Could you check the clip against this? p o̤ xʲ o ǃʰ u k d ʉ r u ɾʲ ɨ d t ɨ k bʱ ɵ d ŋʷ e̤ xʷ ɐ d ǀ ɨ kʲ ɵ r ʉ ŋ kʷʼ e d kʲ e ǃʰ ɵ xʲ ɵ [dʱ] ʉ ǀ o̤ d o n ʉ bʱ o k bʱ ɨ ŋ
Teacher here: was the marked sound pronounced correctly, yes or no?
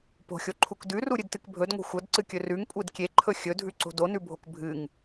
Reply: yes